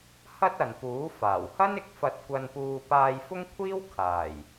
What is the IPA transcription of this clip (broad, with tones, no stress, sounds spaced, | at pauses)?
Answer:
h ɐ˥ t̚ ɐ˨ n p uː˨˥ f aː˨˩ w h ɐ˥ n ɪ˨˥ k̚ f ɐ˧ t̚ kʷ ɐ˧ n p uː˧ p aː˧ j f ʊ˥ ŋ kʷʰ iː˥ w kʰ aː˨˩ j